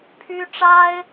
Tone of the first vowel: high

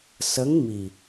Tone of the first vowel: rising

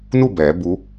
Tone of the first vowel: falling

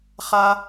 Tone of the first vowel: high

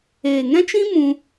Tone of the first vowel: low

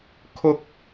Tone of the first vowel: high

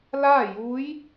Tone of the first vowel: falling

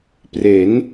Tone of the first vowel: rising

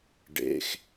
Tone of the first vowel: low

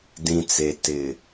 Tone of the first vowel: low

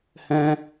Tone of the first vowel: high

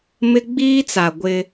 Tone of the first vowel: high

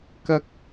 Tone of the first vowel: high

